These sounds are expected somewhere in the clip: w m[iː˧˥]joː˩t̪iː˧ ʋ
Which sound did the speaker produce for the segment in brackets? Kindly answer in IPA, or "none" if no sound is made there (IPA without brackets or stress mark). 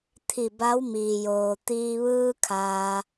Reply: iː˩